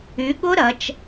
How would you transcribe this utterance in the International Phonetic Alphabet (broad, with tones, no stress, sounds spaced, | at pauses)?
y˩˧ ɠ ʊ˦˥ ɾ ɐ˩˧ t͡ʃ